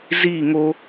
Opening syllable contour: falling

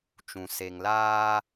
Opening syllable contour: low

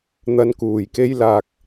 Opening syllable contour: low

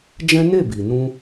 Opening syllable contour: high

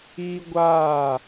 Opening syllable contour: high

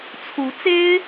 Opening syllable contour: rising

